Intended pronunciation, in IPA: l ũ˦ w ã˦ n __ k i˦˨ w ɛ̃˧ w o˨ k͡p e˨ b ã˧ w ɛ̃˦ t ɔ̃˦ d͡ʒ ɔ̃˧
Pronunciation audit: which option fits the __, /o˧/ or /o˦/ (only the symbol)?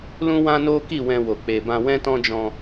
o˦